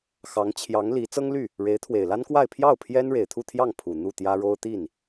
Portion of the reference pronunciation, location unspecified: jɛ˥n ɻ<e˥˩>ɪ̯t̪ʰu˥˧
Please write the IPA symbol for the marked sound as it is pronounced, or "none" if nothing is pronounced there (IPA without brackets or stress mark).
e˨˩